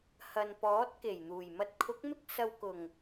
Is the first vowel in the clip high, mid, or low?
low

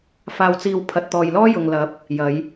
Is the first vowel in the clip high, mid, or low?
low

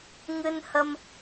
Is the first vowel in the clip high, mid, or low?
high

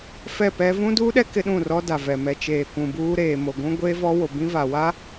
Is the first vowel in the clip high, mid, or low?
mid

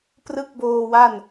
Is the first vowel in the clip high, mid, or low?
high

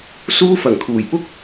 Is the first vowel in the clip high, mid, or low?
high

